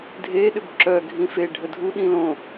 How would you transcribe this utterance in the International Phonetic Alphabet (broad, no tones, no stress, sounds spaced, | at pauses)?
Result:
dʱ e ɗ ʏ b ǁ œ ɡʱ ĩ f e ɖʱ ə dʱ u ɗ ĩ l õ